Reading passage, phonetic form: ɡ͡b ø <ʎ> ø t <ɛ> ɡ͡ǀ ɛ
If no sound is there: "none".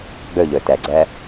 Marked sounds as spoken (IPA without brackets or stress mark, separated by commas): ʎ, ɛ